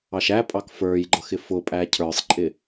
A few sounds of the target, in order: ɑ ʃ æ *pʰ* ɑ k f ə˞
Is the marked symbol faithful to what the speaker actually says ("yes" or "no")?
no